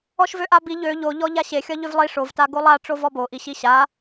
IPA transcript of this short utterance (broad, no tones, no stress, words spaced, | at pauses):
ɔʃvøʔabi ʎø ʎoʎɔ ʎaɕexʲɒ ʎøvlˠi ʂovta ɡolˠaʈ͡ʂovɔ bo ʔiɕiɕa